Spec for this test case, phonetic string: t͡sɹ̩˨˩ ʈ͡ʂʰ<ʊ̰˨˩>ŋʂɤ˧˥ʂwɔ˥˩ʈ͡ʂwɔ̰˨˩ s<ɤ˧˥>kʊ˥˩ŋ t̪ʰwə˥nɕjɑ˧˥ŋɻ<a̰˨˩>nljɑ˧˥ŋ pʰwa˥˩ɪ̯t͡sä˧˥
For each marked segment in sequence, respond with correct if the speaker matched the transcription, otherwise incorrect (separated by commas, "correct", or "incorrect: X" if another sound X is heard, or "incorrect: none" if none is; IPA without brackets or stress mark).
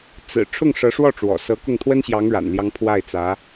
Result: incorrect: ʊ˥˩, correct, correct